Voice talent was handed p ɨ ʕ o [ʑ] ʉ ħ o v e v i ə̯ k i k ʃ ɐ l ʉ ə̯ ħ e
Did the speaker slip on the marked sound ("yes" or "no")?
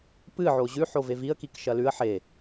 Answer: no